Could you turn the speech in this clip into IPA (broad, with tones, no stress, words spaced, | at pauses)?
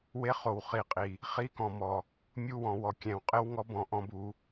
we˦χo˨w χi˨qʼi˨ | χi˦kɔ̃˨mɔ˨ | mʲu˦wɔ̃˨wɔ˨ kʲɛ̃˨w qʼɪ˦wŋɔ˦b ɔ̃˨ʔɔ̃˦bu˨˦